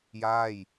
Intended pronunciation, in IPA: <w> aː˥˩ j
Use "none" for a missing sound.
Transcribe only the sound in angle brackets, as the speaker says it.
j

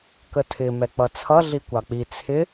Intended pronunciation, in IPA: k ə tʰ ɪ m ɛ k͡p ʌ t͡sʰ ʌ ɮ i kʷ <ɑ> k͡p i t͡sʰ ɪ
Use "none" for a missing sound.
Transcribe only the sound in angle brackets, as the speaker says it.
ɑ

